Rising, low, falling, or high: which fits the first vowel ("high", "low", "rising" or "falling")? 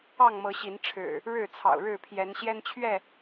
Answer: falling